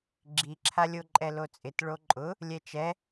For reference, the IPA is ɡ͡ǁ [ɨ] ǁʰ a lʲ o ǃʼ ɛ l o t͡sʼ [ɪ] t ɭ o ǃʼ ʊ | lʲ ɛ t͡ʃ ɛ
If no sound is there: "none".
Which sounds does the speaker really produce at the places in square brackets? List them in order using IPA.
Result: i, ɪ

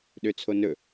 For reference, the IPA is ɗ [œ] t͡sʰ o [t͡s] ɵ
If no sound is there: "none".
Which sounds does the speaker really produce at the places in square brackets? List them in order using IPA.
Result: ø, n

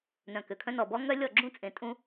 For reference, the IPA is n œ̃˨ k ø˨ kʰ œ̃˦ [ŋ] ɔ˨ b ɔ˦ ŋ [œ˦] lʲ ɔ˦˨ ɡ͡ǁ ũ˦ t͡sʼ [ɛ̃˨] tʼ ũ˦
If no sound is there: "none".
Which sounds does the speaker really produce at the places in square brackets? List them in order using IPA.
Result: n, œ˦, ẽ˨

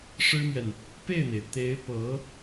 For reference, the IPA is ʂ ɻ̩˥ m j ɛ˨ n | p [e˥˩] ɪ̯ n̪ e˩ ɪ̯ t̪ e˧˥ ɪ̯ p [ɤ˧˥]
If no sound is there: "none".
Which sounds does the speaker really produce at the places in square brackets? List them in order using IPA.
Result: e˥˩, ɤ˧˥

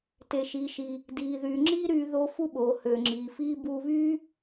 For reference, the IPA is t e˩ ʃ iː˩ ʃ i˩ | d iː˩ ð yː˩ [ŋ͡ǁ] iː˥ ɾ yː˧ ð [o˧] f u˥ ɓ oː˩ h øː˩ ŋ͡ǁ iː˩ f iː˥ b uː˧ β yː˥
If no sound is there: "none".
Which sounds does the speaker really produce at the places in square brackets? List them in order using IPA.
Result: ŋ͡ǁ, o˧

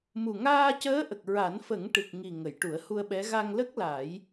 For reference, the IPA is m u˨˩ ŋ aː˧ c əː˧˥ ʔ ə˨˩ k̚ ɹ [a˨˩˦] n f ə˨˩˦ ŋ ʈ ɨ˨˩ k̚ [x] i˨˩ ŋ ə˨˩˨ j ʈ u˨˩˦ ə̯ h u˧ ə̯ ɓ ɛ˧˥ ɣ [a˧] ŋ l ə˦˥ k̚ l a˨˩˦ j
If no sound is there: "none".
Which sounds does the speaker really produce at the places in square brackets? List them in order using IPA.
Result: a˨˩˦, ŋ, a˧

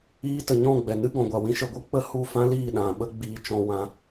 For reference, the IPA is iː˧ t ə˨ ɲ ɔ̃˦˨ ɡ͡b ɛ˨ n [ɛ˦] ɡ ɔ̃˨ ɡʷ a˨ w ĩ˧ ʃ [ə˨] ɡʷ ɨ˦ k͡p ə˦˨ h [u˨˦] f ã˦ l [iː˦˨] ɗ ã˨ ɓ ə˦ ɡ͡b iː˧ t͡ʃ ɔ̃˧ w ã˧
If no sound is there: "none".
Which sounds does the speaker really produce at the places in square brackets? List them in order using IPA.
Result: ɨ˦, ə˨, u˦˨, iː˦˨

